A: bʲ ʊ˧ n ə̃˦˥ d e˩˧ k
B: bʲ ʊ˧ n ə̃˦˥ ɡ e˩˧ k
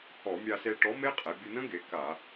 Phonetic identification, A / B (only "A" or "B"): B